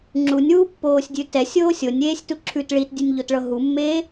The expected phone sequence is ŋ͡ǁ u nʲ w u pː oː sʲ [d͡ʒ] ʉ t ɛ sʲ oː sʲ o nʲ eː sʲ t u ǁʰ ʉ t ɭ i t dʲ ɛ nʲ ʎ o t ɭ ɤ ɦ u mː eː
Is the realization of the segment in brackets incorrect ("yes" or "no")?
yes